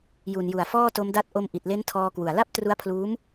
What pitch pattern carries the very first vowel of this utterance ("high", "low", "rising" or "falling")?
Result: low